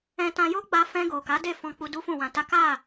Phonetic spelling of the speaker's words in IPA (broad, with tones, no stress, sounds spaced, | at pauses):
ɛ̃˧ t ã˧ j o˦ ɡ͡b a˧ f ɛ̃˧ ɡ o˨ k a˨˦ d e˦˨ f ɔ̃˧ k͡p u˧ d u˦ f ũ˦˨ w ã˧ t a˦ k a˦˨